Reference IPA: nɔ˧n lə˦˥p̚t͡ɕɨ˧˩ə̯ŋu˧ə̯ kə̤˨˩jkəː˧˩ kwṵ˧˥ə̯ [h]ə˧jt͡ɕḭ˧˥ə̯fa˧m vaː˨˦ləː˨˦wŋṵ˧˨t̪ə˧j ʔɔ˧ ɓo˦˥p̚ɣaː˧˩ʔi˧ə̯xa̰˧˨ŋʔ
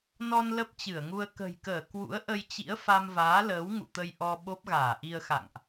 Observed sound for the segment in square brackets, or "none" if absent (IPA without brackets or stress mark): ʔ